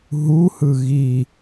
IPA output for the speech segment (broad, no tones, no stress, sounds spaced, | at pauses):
ɦ u h ɯ ɣ i